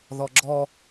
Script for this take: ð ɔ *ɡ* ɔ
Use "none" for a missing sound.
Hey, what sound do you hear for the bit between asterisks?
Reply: ɡ͡ǁ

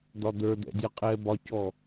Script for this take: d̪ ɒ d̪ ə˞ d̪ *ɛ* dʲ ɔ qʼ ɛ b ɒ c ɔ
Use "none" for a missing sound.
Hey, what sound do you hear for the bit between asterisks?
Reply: ɛ̰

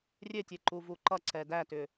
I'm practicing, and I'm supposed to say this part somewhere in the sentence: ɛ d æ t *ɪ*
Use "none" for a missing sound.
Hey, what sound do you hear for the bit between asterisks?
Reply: ʏ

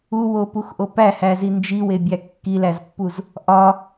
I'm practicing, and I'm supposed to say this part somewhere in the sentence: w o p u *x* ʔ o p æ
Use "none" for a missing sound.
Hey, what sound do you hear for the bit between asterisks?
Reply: x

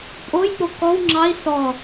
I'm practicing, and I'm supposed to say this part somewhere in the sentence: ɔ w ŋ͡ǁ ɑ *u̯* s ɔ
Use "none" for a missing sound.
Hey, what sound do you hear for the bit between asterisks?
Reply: i̯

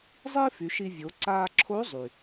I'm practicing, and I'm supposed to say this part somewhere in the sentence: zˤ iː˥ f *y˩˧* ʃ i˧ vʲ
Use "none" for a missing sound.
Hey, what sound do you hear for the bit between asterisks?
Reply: y˩˧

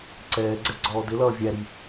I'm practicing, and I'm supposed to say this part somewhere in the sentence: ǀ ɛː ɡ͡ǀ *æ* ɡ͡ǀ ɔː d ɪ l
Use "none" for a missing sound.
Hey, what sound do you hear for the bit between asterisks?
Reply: ɛ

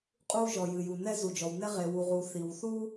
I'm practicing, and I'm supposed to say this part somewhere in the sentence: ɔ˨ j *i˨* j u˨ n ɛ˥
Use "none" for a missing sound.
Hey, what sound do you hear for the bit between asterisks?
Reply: ɨ˨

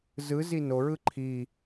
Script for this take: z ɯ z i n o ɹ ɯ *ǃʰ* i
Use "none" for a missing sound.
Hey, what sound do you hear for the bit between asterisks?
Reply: ǃʰ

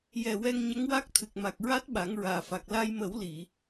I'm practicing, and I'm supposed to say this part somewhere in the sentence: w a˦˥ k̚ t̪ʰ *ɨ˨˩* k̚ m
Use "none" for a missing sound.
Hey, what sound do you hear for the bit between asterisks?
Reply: ɨ˨˩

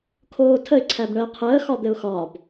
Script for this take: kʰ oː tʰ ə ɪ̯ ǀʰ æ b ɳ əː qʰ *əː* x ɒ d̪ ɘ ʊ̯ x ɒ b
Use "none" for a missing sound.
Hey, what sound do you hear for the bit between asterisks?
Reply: əː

